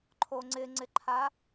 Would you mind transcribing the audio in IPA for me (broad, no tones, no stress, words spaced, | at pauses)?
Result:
ǃʰoŋ͡ǀɪŋ͡ǀɪǃʰa